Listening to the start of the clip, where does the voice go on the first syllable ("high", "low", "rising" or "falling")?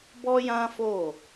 high